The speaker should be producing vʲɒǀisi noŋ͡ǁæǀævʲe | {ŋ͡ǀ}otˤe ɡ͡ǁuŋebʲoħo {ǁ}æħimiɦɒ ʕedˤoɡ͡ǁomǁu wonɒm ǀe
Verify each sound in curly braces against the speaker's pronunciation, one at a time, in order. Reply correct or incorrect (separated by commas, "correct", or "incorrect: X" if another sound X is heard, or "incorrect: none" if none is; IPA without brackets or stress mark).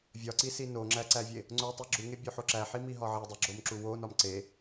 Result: correct, correct